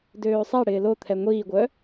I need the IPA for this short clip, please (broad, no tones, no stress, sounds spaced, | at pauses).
d øː sˤ ɛ ɽ ɪː l o t̪ʰ ɛ ŋʷ iː ɡʷ œ